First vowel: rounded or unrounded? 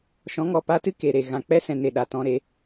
rounded